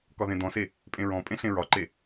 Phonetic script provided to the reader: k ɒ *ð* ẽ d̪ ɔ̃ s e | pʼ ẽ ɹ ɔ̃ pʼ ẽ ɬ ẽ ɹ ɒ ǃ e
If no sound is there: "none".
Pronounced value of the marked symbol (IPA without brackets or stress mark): ð